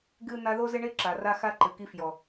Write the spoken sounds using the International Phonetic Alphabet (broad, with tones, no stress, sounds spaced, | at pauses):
ɡ ɨ˥ n̪ a˦ ð o˥ z ɪ˥ ɳ e˥ ǁ a˨ r a˦ x a˥ ǃ ɨ˩ k i˦ f j ɔ˩